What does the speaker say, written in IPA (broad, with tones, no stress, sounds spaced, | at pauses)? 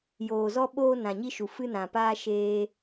j oː˨ z ɔ˧ ɓ oː˧ n ã˨ ɲ i˧ ʃ u˨ f ɨ˧ n ã˨ p aː˧ ʃ eː˧